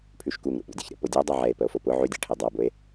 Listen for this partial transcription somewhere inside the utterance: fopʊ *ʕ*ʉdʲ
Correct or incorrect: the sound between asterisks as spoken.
correct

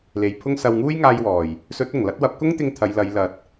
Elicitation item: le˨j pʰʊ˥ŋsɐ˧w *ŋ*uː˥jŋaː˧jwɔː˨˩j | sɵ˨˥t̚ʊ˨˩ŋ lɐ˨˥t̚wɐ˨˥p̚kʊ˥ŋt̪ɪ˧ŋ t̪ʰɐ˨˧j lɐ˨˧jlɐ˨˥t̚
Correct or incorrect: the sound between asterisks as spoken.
correct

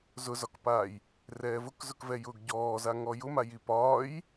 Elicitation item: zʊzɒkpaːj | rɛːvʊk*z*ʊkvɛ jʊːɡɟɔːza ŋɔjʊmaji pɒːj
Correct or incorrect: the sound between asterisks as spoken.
correct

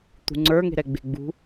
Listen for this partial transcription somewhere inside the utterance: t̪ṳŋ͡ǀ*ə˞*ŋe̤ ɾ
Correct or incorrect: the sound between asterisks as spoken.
correct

